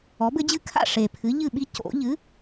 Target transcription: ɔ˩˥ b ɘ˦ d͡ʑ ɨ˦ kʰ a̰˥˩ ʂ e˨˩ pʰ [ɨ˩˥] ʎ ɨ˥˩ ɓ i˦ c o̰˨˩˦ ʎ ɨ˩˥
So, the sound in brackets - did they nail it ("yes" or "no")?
yes